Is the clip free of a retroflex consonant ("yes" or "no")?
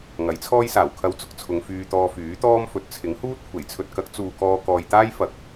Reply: yes